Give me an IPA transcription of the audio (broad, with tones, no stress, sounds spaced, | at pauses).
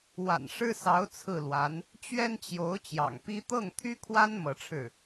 w a̰˨˩ n ʂ ɻ̩˥ s ɑ˧˥ ʊ̯ t͡sʰ ɹ̩˥˩ l w a˧˥ n | t͡ɕ ɥ ɛ˥ n t͡ɕ j o˧˥ ʊ̯ t͡ɕ j ɑ̰˨˩ ŋ p i˥ t̪ ɤ˥˩ ŋ t̪ʰ y˥ kʰ w a˥ n m ɤ˧˥ ʈ͡ʂʰ ɻ̩˥˩